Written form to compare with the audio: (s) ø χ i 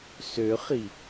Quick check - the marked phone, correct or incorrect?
correct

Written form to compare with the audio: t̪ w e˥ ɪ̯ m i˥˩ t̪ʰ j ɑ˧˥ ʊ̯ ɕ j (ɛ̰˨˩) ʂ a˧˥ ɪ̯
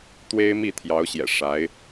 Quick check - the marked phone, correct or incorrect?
correct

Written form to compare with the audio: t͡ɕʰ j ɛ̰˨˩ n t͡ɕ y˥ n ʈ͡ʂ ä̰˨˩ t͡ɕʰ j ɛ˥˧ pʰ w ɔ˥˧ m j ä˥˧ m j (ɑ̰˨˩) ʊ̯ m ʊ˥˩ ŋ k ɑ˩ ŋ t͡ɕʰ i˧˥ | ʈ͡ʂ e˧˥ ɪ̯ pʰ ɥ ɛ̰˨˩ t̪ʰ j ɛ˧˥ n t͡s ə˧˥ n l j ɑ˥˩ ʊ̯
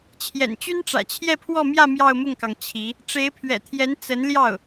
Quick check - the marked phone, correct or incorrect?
incorrect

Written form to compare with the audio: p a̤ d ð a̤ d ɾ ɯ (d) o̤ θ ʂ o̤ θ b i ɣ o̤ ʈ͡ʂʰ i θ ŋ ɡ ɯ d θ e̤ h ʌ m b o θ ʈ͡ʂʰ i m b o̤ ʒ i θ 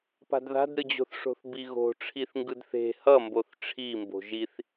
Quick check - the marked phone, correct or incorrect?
incorrect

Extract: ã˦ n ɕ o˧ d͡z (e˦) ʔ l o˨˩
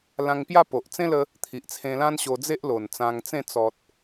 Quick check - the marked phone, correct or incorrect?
correct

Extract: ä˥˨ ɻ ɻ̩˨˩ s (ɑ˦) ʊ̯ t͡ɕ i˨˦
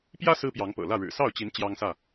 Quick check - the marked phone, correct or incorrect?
incorrect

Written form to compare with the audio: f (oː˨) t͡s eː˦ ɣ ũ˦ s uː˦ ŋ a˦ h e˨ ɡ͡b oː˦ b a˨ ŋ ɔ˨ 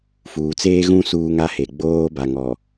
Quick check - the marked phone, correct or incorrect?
incorrect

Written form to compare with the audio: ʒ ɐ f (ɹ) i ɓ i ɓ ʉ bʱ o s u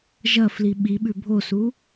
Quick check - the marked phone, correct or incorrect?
incorrect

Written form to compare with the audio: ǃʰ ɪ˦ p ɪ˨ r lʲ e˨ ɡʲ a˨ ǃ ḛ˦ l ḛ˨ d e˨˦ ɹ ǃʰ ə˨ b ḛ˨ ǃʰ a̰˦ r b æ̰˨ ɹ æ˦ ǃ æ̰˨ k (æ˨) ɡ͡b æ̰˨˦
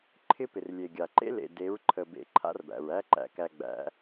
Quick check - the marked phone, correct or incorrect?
correct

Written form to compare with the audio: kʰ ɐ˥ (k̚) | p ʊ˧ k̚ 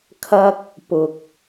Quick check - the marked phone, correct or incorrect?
correct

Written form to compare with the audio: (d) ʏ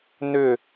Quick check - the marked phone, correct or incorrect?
incorrect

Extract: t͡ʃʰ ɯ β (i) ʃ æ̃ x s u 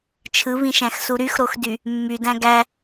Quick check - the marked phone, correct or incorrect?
incorrect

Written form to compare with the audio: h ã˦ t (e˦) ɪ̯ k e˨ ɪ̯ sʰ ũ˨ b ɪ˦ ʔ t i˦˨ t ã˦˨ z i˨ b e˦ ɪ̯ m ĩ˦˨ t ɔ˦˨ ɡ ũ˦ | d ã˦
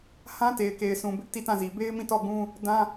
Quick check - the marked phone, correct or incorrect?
incorrect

